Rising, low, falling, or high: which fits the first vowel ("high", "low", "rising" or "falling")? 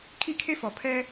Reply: high